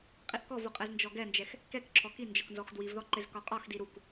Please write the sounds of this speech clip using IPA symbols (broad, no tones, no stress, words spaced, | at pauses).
qʼiʔkɔvu qʼɛznd͡ʒɔɡɛnd͡ʒɛx | kɛkǁʰɔ ki nd͡ʒɒknzɔxdwivðɔ ǃɪzkɒqʼɒxdi ɾuk